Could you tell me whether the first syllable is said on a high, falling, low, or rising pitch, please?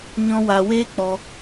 high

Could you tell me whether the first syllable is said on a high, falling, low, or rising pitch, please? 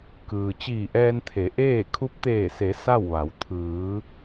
low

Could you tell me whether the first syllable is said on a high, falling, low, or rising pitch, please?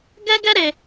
high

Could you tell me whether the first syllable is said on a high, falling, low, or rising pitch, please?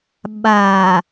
low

